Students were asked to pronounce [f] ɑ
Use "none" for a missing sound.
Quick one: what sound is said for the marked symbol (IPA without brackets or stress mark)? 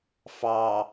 f